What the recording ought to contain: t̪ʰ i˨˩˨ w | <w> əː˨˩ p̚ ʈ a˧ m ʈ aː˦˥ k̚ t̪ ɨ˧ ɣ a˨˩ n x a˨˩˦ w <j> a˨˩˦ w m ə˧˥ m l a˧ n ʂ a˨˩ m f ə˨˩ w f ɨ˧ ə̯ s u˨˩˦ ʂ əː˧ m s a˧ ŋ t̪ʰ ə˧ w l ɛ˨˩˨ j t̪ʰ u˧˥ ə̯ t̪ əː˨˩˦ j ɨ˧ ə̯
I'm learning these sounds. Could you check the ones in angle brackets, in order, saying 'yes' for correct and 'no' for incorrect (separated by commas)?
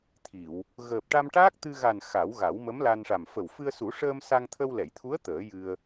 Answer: no, no